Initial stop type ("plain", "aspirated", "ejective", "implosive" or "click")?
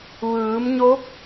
plain